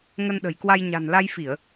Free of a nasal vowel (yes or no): yes